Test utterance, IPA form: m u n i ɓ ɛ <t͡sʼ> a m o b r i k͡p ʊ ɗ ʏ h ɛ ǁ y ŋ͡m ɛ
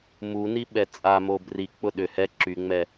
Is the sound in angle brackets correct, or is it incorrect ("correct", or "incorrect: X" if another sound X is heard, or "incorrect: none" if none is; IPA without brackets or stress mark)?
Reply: correct